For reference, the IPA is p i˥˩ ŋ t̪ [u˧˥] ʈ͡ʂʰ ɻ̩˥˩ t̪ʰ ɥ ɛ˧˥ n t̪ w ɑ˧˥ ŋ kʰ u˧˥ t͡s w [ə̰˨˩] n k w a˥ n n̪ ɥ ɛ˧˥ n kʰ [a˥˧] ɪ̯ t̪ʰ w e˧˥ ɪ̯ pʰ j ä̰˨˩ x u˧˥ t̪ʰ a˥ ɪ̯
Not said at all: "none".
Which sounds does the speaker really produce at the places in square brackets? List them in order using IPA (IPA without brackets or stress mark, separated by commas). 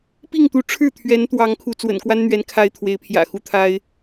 u˧˥, ə̰˨˩, a˧˥